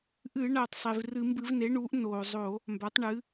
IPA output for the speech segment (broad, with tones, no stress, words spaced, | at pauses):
ʔɨ˧˩˧ ɳa˩tˤsˤe˩v rɨ˧˩˧mbɨ˧˩˧vne˩˥ɳuː˩˥ʔ noː˩zˤo˧˩˧ | mba˩˥tˤɳɨː˩˥